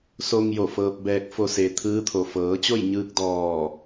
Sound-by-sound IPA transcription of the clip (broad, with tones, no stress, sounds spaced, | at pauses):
s o˧ ŋ j o˧˩ f ɤː˧ p̚ b ɛː˧ k̚ f o˧ s e˩˧ t̪ʰ ɯː˧˥ t̪ʰ o˩ f ɤː˩˧ t͡ɕ o˥˨ j ɲ ɯː˧ k̚ d ɔː˧˩